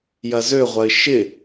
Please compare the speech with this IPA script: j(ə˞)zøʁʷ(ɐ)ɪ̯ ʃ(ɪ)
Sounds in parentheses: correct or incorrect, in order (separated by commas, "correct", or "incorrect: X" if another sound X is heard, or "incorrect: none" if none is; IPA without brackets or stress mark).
incorrect: ɐ, correct, correct